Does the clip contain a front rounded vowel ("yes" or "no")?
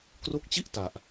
no